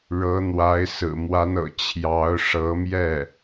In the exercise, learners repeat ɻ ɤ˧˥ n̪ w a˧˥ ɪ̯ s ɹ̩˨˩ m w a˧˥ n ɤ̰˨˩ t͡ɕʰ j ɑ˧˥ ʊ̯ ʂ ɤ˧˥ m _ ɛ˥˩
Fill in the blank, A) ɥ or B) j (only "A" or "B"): B